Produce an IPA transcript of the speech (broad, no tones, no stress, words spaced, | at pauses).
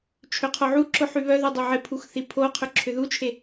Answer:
t͡ʃʰøqʰoʕuǁʊ ħyβœðy dˤɪʕɪpʰux θipʰoqʰʏ ǁʰʏðut͡ʃʰe